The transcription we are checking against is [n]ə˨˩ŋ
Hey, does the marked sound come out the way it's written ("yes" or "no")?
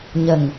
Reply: no